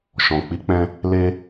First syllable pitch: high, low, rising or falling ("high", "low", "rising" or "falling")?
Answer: low